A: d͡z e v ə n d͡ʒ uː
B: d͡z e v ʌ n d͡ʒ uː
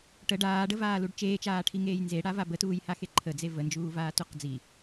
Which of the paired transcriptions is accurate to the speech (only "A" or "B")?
A